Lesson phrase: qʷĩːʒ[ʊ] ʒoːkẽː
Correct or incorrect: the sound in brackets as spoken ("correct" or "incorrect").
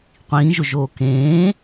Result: correct